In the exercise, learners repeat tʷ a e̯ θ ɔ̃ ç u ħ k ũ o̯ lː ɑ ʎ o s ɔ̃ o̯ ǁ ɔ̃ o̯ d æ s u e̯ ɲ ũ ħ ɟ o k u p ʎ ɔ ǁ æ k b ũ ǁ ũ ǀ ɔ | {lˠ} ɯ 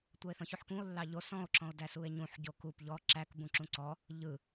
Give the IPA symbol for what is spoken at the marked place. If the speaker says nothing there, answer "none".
ʎ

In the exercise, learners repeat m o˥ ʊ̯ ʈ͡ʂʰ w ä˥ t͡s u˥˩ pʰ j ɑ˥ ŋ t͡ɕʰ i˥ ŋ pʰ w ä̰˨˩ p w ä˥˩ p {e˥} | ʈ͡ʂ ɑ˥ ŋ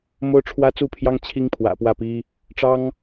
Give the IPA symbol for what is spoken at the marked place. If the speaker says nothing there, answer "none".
i˥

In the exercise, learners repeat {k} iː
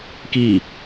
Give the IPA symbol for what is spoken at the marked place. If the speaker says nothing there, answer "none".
k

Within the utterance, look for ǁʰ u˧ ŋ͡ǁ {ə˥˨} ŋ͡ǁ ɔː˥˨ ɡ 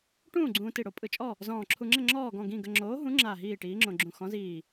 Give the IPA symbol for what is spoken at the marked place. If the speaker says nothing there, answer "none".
ə˥˨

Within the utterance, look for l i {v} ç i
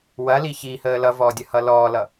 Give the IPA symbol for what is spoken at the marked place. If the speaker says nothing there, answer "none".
none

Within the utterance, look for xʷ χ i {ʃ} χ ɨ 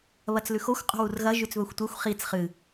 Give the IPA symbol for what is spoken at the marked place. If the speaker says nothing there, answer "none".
t͡s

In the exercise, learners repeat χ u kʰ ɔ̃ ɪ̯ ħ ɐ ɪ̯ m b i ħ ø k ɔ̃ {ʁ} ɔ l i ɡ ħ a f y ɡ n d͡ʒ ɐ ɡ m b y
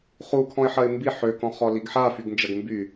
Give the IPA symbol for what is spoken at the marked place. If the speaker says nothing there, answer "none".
χ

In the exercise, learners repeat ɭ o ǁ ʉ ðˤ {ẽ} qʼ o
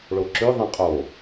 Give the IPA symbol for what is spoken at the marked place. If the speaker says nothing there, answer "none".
ẽ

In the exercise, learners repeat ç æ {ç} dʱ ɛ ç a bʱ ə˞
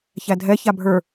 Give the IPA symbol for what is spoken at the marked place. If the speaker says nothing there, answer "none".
none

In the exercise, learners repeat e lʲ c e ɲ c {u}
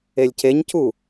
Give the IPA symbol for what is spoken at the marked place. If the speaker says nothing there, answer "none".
u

